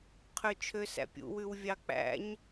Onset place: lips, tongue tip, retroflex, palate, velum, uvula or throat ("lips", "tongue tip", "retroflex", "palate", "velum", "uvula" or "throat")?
uvula